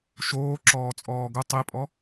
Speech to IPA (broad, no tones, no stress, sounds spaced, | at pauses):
ʃ oː ǁ ɔː t͡sʼ ɔː ɡ ʊ tˤ i pʼ ɔ